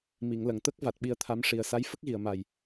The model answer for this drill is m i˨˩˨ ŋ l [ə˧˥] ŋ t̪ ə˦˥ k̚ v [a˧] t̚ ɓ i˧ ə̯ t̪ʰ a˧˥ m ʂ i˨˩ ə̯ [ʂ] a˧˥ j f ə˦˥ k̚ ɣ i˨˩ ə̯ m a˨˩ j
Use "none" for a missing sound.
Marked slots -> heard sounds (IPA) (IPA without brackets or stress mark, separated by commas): ə˨˩˨, a˨˩, s